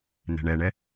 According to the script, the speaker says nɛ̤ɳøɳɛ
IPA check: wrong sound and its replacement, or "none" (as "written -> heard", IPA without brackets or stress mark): ø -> ɛ